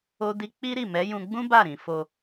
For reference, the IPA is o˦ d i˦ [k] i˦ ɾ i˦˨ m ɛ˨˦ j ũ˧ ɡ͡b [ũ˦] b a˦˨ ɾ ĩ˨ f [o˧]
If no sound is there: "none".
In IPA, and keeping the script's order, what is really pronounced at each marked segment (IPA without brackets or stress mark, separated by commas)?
k͡p, ũ˦, o˧